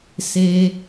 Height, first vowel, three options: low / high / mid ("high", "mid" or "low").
mid